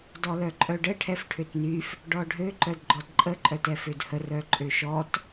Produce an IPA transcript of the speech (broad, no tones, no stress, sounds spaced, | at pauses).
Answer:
d ɔ l œ ǃʼ œ ɖ ə ʈʰ ɛ f ʈʰ ø t n y f | ɖ ɔ ɖʱ ø ǃ œ d ɡ͡ǃ ɔ d ǃʼ ə ǃʼ œ t ɛ f ø d h ə r œ ǃʼ ø ʃ ɔ t